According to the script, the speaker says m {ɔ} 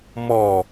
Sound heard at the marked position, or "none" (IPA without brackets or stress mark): ɔ